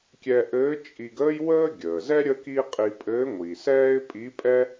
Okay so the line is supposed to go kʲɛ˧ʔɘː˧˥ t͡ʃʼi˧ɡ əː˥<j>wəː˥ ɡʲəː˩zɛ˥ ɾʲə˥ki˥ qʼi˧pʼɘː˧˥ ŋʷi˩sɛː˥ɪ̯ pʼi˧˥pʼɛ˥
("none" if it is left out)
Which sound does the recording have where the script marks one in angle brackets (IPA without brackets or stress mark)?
j